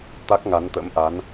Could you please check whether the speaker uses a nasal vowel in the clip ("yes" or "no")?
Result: no